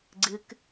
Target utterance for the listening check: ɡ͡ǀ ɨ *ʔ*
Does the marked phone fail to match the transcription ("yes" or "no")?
yes